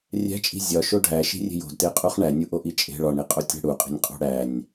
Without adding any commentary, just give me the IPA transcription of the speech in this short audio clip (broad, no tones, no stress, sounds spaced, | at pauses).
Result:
rʲ æ̤ t͡ʃʼ i̤ zʲ ɒ ʃ o ɖʱ æ ʃ i̤ rʲ e̤ j o̤ d t e qʼ u χ ɳ æ nʲ u ʔ o ʔ i t͡ʃʼ e̤ ɭ ɒ ɳ i qʼ o tʲ æ̤ ɽ u qʼ e̤ nʲ qʼ o̤ ɽ æ nʲ